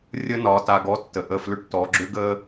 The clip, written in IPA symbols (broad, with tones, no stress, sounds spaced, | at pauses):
rʲ ə˦ n ɒ˨˦ t a˧ ɡ ɔ˦ tː ə˧ ʔ ə˦˨ f l ʏ˦ ʈ t ɔ˨˦ ɡ͡ǁ ʏ˦ ɡ ə˦